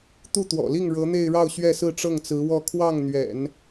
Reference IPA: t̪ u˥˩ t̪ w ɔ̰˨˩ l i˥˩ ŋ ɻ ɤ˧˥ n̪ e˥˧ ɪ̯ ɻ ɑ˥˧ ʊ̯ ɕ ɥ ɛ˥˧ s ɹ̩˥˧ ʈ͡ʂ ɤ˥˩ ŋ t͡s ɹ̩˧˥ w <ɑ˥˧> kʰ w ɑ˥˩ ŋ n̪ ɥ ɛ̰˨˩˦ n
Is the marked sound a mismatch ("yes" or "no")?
yes